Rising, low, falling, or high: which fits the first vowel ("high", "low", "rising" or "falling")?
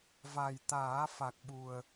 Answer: low